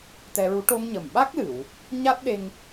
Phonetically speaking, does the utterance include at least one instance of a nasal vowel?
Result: no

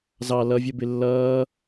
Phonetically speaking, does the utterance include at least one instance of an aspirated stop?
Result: no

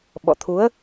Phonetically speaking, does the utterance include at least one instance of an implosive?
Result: yes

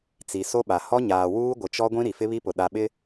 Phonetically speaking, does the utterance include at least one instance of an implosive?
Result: yes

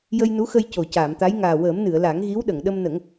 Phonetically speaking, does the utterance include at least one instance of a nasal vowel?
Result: no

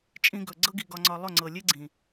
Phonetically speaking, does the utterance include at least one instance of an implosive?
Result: no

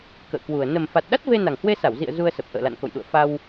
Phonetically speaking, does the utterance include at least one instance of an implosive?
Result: yes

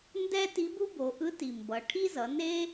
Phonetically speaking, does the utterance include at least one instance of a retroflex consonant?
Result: yes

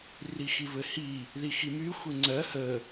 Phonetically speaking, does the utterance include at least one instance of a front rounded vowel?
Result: yes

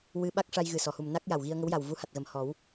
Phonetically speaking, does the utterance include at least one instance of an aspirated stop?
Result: no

